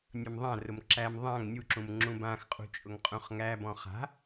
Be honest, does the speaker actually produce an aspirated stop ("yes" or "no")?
no